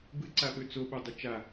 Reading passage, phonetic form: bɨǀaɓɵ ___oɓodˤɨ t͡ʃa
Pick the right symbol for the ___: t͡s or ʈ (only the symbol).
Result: t͡s